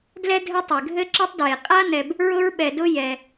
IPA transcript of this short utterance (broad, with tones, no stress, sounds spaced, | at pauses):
d l ɛ˥ dʱ ɘ˦ tˤ e˩ ɡʱ ɘ˥ ǁ ɘ˦ tˤ d w e˩ qʼ a˥ n ɛ˨ b | ɹ ʊ˦ ɹ ɓ ɛ˨ d ʊ˦ j ɛ˩